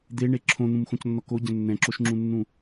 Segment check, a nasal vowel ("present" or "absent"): present